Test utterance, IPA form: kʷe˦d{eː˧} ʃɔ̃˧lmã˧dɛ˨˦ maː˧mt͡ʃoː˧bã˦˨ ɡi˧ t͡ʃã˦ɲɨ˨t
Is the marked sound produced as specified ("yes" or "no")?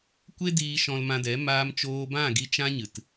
no